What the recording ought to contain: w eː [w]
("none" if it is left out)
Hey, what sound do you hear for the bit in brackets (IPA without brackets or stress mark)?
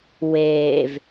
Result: v